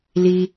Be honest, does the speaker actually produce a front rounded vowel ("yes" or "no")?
no